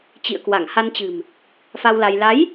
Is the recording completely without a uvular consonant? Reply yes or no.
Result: yes